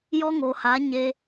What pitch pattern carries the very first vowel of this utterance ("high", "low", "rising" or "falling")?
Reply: high